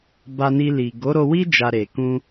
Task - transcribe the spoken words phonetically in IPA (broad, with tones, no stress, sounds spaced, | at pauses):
b a˧ n i˧ l i˨ ɡ o˨˦ ɾ o˧ w i˦ d͡ʒ a˧ ɾ e˨ k ũ˧